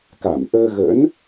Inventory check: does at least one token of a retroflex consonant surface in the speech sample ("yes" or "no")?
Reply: no